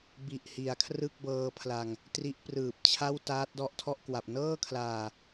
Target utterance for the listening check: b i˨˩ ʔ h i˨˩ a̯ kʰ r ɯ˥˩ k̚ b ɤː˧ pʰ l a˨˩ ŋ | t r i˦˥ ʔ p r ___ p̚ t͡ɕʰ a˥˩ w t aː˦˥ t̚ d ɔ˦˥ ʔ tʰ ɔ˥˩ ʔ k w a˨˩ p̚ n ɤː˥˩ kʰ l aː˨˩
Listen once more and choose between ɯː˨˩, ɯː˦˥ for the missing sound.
ɯː˨˩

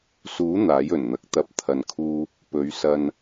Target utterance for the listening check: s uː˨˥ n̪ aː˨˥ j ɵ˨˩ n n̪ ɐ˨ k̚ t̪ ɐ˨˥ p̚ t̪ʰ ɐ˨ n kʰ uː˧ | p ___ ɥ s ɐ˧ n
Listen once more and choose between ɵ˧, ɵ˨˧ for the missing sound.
ɵ˨˧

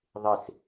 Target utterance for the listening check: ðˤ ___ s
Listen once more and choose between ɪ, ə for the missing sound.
ɪ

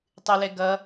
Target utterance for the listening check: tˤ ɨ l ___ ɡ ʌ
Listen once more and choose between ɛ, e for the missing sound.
ɛ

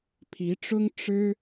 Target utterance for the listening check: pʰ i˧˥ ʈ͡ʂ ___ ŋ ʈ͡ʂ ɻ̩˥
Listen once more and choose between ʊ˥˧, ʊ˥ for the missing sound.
ʊ˥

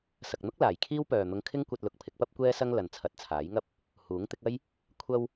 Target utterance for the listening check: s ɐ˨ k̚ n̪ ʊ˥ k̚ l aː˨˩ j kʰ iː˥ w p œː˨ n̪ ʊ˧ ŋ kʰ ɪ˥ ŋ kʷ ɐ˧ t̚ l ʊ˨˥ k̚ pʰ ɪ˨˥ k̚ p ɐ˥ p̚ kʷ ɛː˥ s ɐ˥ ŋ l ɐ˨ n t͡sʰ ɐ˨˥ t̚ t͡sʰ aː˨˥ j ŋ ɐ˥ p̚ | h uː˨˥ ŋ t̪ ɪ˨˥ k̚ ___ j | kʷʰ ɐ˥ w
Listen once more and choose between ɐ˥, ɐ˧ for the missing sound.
ɐ˥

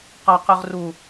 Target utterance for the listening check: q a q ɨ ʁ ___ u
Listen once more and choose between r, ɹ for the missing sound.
r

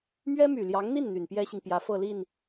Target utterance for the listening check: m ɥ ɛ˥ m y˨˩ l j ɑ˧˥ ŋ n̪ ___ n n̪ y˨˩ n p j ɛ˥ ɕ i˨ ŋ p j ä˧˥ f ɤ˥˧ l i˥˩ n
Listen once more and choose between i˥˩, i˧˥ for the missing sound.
i˥˩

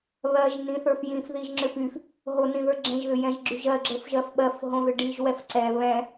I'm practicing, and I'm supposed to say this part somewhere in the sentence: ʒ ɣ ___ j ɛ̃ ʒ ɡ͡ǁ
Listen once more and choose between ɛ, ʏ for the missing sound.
ʏ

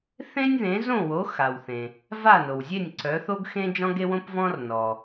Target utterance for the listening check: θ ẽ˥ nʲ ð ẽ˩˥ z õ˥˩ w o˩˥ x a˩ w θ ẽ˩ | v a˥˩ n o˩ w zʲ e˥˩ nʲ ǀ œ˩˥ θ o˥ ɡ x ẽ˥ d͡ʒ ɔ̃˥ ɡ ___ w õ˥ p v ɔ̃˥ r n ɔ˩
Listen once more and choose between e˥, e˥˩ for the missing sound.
e˥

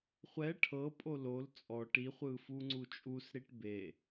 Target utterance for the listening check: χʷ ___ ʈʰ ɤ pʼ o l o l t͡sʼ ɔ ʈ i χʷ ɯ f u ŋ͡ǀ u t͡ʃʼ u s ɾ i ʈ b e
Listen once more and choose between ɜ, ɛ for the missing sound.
ɛ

